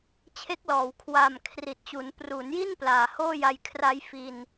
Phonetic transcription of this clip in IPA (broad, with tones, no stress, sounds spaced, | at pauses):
t͡ɕʰ e˦˥ k̚ l ɔː˩˦ w kʰ w aː˨˩ m kʰ r i˨˩ t̚ t͡ɕ u˩˦ n p r u˩˦ n j i˥˩ n p l aː˨˩ h oː˥˩ j a˧ j kʰ r a˦˥ j f i˧ n